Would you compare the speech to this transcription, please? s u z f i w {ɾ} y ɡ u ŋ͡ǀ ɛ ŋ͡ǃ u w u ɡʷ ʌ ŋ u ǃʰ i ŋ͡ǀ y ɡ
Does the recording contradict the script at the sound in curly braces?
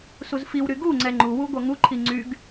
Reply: no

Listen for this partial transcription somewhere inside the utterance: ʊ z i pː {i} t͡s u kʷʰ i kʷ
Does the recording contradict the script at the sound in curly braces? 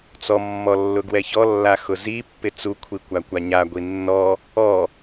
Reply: yes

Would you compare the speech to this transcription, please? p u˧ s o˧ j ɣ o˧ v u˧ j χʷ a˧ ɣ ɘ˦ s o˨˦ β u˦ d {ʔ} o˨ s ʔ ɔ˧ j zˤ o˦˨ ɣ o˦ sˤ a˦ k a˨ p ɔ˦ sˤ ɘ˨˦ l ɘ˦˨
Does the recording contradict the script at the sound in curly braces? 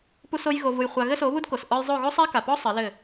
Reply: yes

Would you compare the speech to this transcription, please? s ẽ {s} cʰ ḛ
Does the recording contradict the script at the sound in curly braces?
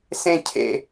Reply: yes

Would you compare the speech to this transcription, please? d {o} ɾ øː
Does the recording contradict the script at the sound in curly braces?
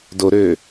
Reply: no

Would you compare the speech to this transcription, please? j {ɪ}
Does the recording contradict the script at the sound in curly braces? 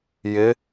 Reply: no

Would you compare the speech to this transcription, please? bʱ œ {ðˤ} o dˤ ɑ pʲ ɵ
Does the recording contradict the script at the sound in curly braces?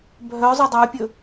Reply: yes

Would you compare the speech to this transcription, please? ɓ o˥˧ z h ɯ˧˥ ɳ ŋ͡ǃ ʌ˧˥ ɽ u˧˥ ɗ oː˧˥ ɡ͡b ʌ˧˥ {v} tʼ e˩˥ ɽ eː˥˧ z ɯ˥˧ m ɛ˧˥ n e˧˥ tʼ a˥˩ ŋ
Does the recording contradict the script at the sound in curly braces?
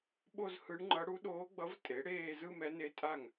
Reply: no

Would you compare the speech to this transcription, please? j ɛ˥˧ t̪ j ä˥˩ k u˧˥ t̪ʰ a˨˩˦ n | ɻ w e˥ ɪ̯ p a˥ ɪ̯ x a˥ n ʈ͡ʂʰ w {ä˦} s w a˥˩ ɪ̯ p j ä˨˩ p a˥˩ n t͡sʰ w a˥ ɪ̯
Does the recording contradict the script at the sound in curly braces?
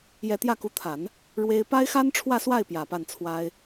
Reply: yes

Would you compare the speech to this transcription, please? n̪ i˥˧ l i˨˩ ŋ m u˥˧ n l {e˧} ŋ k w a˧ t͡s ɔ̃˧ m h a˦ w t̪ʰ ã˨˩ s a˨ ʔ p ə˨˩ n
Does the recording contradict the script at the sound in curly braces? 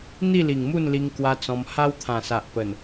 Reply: yes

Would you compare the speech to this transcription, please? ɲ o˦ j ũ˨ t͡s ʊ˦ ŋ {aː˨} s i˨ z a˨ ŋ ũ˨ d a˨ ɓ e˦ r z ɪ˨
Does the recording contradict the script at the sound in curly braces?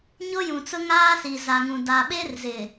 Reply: yes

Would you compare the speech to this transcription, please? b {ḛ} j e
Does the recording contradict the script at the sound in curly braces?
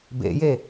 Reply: no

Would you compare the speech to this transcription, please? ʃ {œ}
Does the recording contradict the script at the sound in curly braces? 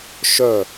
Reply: no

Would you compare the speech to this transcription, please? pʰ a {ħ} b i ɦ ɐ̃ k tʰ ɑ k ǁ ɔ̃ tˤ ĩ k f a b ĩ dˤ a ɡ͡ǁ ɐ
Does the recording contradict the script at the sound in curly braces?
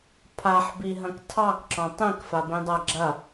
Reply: no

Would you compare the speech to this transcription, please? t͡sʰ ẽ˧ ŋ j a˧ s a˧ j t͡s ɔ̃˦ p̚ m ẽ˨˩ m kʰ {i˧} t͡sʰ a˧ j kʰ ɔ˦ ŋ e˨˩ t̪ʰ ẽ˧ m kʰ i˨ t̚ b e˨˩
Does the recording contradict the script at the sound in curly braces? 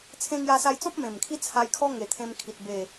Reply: yes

